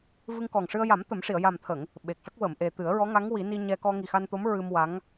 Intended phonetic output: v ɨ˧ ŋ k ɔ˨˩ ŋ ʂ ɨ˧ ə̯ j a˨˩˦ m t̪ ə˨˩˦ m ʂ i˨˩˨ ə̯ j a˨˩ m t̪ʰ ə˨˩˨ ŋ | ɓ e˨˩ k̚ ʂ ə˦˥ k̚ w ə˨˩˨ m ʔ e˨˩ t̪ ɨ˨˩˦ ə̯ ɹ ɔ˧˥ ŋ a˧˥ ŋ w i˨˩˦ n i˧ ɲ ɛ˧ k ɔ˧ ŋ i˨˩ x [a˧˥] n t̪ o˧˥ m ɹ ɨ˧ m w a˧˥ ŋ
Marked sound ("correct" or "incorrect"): incorrect